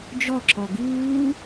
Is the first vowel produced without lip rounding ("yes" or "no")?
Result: no